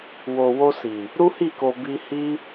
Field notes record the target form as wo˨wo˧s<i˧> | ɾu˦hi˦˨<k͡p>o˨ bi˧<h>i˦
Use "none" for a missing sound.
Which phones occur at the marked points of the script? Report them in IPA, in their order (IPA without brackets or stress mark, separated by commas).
i˨, k, h